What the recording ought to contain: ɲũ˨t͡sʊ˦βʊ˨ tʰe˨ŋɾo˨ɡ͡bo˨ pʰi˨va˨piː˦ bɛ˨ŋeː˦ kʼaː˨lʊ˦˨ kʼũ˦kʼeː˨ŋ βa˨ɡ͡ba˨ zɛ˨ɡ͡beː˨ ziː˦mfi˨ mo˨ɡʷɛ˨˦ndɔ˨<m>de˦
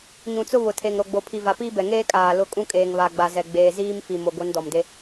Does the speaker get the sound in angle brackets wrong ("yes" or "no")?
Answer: no